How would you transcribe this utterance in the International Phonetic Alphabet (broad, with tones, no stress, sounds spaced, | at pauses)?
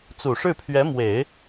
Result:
t͡s u˨˩ ʂ ɻ̩˥˩ pʰ ɥ ɛ˧˥ m w e˨˩˦ ɪ̯